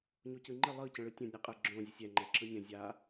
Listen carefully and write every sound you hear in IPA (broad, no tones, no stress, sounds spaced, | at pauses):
ɲ o c ɯ ŋ͡ǃ ə lˠ ɯ c ə̃ ɭ ɯ tʲ ə̃ nʲ ɯ qʼ ə ɡ͡ǁ õ zʲ ə sʲ ɛ ŋ͡ǃ ɛ ǁ ɯ nʲ ə̃ zʲ a